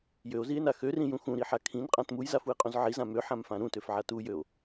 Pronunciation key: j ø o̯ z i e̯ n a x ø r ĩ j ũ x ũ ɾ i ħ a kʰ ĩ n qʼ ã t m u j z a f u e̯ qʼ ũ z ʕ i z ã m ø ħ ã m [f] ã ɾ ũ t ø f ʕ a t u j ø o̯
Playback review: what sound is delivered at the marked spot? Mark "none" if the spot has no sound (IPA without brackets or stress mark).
f